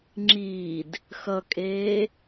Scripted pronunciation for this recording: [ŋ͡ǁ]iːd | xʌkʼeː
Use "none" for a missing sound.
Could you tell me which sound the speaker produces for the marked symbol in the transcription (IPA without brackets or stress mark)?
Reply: ŋ͡ǁ